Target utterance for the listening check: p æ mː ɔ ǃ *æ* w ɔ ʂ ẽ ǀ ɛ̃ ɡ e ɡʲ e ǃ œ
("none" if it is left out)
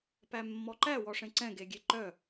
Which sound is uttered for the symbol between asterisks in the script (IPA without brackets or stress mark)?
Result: æ